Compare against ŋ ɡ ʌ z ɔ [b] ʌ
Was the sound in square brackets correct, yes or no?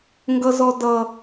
no